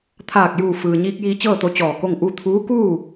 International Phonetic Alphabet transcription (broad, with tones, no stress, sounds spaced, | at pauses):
t̪ʰ aː˧˩ k̚ j uː˧˩ f ɯː˩ ɲ iː˧ k̚ j iː˧ t͡ɕ ɤː˥˨ t̪ o˧ t͡ɕ ɔː˧˩ k o˥˨ ŋ ʔ u˥˨ t̪ʰ uː˧˥ k uː˥˨